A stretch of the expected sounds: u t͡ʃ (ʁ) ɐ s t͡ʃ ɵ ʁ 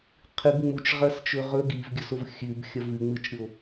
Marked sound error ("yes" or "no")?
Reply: no